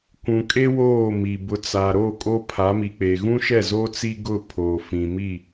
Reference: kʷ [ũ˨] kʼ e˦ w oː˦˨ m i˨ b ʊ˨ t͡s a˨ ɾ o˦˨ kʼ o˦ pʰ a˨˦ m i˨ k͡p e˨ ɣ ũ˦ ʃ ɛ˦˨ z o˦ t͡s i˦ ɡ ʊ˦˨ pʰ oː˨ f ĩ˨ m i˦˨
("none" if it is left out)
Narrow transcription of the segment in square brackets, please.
ũ˨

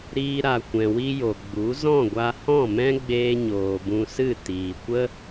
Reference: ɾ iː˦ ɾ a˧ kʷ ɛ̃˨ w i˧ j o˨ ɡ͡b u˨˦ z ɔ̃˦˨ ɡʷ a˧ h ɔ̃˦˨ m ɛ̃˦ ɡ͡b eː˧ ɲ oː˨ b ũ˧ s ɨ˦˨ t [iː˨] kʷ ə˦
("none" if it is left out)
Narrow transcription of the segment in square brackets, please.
iː˨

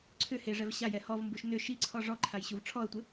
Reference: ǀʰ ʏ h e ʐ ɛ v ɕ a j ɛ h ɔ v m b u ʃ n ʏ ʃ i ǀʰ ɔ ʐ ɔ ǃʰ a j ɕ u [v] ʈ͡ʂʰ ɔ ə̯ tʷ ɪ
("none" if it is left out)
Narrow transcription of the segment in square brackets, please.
v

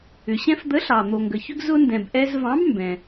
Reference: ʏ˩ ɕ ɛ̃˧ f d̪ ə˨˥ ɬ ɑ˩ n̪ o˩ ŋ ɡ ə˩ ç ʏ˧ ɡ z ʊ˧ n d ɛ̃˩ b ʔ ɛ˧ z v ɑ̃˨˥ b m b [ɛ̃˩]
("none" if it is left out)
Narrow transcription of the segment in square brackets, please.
ɛ̃˩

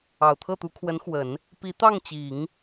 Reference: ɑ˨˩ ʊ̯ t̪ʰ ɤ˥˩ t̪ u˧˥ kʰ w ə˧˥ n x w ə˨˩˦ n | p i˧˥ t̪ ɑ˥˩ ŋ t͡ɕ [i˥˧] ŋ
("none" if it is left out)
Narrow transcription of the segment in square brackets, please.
i˨˩˦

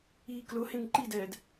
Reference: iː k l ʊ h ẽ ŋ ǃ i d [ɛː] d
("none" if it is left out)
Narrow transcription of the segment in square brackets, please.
ɛː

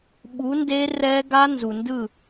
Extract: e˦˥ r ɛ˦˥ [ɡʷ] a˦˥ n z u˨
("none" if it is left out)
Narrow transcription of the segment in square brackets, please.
ɡ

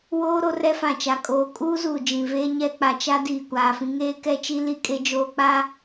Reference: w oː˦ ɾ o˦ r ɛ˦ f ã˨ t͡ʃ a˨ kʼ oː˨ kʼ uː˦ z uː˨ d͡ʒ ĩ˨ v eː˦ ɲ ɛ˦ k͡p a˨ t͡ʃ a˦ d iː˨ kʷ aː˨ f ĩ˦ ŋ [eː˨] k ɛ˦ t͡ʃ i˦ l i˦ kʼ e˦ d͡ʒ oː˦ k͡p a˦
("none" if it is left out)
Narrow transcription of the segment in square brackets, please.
eː˦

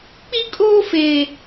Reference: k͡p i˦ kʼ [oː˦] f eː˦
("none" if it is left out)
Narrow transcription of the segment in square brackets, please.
oː˦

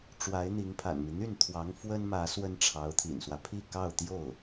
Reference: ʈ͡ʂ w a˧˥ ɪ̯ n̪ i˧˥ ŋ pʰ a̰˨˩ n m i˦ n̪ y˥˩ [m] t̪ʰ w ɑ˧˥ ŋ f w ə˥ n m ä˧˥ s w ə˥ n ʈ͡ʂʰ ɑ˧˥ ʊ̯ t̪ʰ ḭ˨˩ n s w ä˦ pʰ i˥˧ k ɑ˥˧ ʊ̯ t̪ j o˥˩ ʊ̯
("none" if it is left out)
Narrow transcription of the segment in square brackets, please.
n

